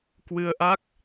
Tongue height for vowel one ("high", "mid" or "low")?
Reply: high